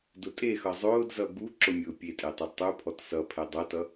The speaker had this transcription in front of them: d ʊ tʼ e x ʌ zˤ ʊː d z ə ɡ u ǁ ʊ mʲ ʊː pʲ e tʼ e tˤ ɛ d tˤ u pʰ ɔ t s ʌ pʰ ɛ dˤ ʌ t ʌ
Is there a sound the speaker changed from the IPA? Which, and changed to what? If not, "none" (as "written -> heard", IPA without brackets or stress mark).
ə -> ʌ